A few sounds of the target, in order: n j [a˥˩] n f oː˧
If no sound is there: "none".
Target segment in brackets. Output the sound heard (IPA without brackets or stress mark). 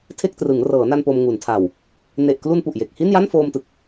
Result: a˥˩